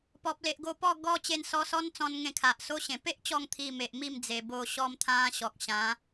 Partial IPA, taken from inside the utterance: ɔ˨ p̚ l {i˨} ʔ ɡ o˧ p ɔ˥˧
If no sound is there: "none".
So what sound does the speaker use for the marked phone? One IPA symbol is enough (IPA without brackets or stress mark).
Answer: e˨